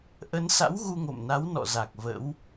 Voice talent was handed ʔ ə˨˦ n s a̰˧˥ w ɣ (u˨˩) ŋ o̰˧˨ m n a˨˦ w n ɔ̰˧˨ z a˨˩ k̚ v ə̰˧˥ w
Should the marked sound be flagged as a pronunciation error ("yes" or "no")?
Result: yes